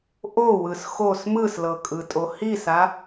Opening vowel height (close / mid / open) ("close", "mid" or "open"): mid